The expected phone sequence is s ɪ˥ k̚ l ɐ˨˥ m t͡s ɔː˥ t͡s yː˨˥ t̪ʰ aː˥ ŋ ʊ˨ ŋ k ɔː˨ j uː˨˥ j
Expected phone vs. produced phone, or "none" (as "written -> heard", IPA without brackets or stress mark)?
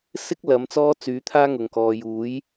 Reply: none